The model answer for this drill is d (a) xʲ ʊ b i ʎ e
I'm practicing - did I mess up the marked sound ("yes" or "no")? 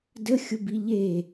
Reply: yes